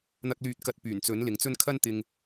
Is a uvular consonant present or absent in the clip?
absent